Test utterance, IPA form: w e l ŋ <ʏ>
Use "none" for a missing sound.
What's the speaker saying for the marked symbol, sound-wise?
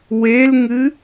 ɨ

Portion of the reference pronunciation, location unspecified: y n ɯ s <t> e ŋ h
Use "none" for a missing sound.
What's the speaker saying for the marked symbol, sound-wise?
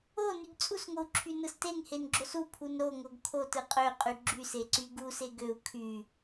t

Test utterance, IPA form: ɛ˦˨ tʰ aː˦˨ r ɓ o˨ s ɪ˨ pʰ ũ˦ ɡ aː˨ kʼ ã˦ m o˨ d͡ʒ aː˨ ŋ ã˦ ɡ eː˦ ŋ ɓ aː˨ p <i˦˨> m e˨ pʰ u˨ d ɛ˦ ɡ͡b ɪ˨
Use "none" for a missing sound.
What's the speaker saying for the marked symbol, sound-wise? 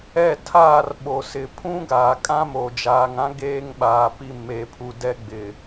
i˦˨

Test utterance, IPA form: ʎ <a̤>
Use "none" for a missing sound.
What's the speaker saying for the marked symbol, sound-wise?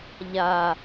a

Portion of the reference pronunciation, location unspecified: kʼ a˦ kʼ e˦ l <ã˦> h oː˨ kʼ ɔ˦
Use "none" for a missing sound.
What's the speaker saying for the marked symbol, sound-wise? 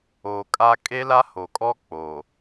a˦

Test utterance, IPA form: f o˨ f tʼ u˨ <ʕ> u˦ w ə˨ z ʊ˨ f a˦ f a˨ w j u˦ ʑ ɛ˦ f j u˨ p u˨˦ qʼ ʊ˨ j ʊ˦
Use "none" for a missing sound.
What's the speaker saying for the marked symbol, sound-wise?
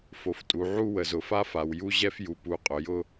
ʕ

